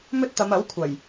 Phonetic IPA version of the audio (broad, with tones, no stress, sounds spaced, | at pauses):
m ɵ˥ t̚ t̪ ɐ˨˧ m ɐ˨˥ w kʷʰ ɐ˨˩ j